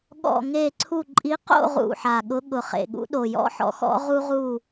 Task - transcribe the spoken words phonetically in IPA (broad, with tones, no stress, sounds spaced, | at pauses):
ɠ ɔ̰˦˨ ŋ e˦˨ ǀʰ u˦˨ ǃʼ i˨˦ q o̰˦˨ ʁ ṵ˨˩ ħ a˨˩ ɠ ʊ˨˦ ɠ ʊ˨˩ χ ḛ˨˩ ɠ ṵ˨˦ ɗ o˨˩ j ɔ̰˦ ħ ɔ̰˨˦ x ɔ̰˦ ʁ u˦ ʁ u˦˨